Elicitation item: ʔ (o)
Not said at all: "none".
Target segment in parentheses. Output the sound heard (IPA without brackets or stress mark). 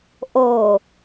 o